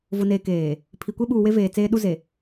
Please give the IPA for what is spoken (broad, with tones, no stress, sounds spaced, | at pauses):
v ʊ˨ n eː˨ k eː˨ | pʰ i˨ kʷ e˦ ɓ uː˨ w e˦ v eː˨ t͡s eː˦ ɗ u˦ z e˨